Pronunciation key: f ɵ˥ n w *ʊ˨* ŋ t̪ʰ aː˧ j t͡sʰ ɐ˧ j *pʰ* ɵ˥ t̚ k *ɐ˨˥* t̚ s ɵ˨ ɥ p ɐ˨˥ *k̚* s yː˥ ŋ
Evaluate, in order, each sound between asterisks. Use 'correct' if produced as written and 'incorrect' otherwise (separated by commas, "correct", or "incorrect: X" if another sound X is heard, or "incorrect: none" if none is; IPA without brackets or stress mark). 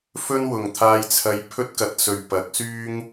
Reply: correct, correct, correct, correct